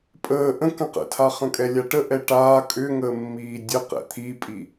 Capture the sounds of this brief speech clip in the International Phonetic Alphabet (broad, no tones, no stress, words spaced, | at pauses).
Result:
pʼəː ʔə̃ kə̃qə̰tʰa χə̃kʼɛlʲaʈə ʔɛʈaː kʼʏŋəː mːiːdʲə qɛ̰t̪ʰipʼi